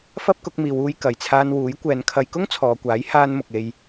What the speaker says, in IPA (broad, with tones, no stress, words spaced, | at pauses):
fɐ˥p̚kʊ˨˥k̚miː˨˧w uː˧jkɐ˨jt͡sʰaː˧n wuː˨˥jkʷɛː˨˧nkʰɐ˧j kʊ˥ŋt͡sʰɔː˨kʷaː˨˥j haː˧n mʊ˨k̚e˧j